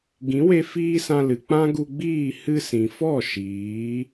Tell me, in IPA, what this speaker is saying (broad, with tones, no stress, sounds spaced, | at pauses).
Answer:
ɡ ĩ˨˦ w e˧ f iː˦ s ã˧ l ɨ˨ k͡p ã˦ ɡ u˧ ɡ͡b iː˦˨ h ɨ˧ s ĩ˨ f ɔ˦˨ ʃ iː˨˦